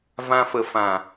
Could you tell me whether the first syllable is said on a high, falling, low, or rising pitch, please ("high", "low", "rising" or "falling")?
high